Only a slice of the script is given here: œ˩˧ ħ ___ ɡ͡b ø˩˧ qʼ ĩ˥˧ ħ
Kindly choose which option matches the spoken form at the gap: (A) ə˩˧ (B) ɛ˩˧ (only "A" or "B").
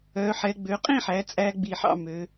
B